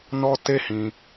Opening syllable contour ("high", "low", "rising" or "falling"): high